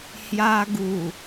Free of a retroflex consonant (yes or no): yes